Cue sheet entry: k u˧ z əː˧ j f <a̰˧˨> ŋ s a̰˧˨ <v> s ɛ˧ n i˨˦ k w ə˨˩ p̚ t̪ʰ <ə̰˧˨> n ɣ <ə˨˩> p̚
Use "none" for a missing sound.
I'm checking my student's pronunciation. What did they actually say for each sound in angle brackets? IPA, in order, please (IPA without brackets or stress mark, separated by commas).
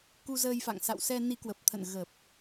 a̰˧˨, w, ə̰˧˨, ə˨˩